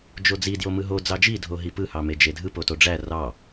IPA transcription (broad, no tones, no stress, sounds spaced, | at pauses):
d͡ʒ o d͡z i d j o m ɯ ɦ o d͡z ɑ d͡ʒ i dʱ o ɦ i p ɯ h ɑ m e d͡ʒ e dʱ ɯ p o t o ɖ͡ʐ æ r ɑ